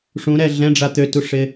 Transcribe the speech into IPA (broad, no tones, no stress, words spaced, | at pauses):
ʂũɾɛ ɮɛ̃ɖ͡ʐa t̪øtuʂɪ